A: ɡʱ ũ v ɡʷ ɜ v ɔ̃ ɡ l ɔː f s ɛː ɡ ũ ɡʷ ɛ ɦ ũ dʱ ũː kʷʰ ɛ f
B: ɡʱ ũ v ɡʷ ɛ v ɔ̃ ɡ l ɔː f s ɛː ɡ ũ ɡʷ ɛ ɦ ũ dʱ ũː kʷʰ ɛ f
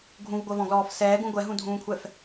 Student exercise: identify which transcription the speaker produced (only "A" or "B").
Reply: A